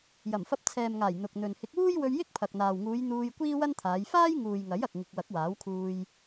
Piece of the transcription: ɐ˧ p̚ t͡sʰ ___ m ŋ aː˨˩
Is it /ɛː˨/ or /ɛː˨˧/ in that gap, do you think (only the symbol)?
ɛː˨